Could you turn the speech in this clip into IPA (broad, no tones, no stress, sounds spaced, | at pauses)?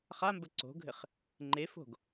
χ a m b ə ǀ o̤ ɡʱ ɘ χ | ŋ͡ǃ e f o̤ ɡ